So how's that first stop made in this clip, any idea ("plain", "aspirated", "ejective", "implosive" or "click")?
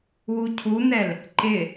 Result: aspirated